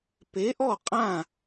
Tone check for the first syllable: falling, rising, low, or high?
rising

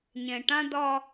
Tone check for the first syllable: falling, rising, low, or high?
low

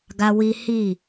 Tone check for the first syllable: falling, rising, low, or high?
high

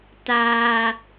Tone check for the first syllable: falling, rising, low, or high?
high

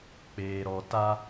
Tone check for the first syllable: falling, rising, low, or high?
low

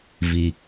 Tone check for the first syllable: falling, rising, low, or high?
low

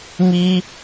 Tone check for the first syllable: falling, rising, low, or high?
high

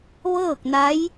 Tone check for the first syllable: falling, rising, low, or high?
falling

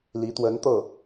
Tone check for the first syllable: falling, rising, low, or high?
rising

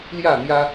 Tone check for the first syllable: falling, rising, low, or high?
falling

